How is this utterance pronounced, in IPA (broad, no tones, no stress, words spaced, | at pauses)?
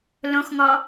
lõxŋɔ